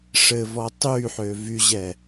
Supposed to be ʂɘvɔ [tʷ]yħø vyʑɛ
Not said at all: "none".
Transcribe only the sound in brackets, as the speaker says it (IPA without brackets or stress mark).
tˤ